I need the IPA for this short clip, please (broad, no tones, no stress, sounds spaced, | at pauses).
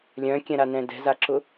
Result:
lʲ œ̃ kʲ ɛ̃ ɾ a n ɛ̃ d ɛ̤ z a ǁ ʊ